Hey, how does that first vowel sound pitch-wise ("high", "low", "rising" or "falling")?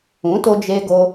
rising